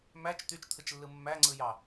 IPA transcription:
m æ t͡ʃ t̪ y t͡ʃ t̪ʰ ɯ t͡ʃ lː ɯ mː æ ŋ͡ǀ ɯ j ɑ

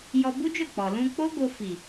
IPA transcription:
j ɔ˧ b u˦ d͡ʒ o˦˨ k͡p ɔ˨ l ũ˧ k͡p o˦ ɡ o˧ f i˨

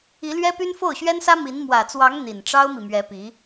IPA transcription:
i˧˥ l ɥ ɛ˥ p y˥ n f o˥˩ ʊ̯ ɕ ɥ ɛ˥ n s ä˥ m i˧˥ n m w ä˨˩ t͡s w ɑ˧˥ ŋ n̪ i˨˩ n ʈ͡ʂ ɑ˥ ʊ̯ m i˨ m ɥ ɛ˧˥ p i˧˥

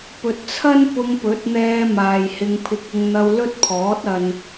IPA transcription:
p ɵ˨ t̚ t͡sʰ ɐ˥ n p ʊ˧ ŋ p ɵ˨˥ t̚ n̪ ɛː˧ m aː˨ j h ɪ˧ ŋ pʰ ɪ˧ k̚ ʊ˧ ŋ n̪ ɐ˧ w l ɵ˥ t̚ pʰ ɔː˨˥ t̚ ɐ˧ n

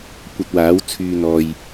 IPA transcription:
kʷ ɐ˧ t̚ w aː˨˥ w t͡sʰ yː˧ n̪ ɔː˨ j

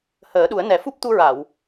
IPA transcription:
h əː˨˩˦ ɗ u˨˩˦ ə̯ n ɛ˨˩˦ f u˦˥ p̚ t̪ u˧ ɹ a˨˩˨ w

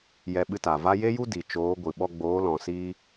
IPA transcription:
j ɛ˧ ɓ ɨ˧ t a˨ v a˦ j e˦ j u˦ d i˨ t͡ʃ oː˨˦ ɡʷ ɨ˨ ɓ ɔ˧ ɡ͡b oː˨˦ l ɔ̃˨ s i˦

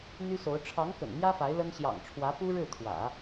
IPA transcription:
n̪ y˥ s o˧˥ ʊ̯ ʈ͡ʂʰ ɑ˧˥ ŋ k ə̰˨˩ n m j ä˥ f a˧˥ ɪ̯ l ə˥ n ɕ j ɑ̰˨˩ ŋ ʈ͡ʂʰ w ä˧˥ p u˥ ɻ ɻ̩˥˩ t̪ʰ w ä̰˨˩˦

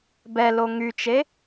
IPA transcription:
b ɛ l o ŋ y t͡ʃ e

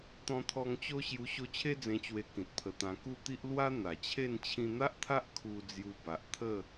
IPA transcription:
t̪ ɔ̃˧ t̪ʰ ɔ˧ ŋ t͡ɕ o˦ ɕ j u˧ ɕ o˧ t͡ɕʰ e˦ d͡z ẽ˧ t͡ɕ w e˧ k ĩ˨ t̚ pʰ ə˧ t̪ ã˧ k u˥˧ t̪ i˦ ʔ l w a˦ n̪ a˨˩ t͡ɕʰ e˥˧ n t͡ɕʰ ĩ˧ n̪ a˦ ʔ t̪ʰ a˦ ʔ kʰ u˧ d͡z j u˧ b a˨ ʔ t̪ʰ ə˥˧

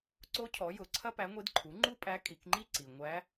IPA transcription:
ǀ o˧˥ cʰ ɔ˩˧ j ʊ˩˧ ǀʰ ɐ˥ p æ˧˥ ŋʷ i˧˥ d ǃʰ u˩˥ ŋ͡ǃ u˥ pʼ æ˧˥ kʼ i˩˧ k ŋ͡ǃ i˥ ǀ i˩ ŋʷ æ˧˥

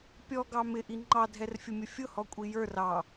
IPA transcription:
pʲ ɔ ɡ ɑ m ɪ ʔ i ŋ͡ǃ ɑ dʱ ɛ r fʲ ʊ mʲ ʊ fʲ ʊ h ɔ kʷʼ i j ə˞ r ɑ

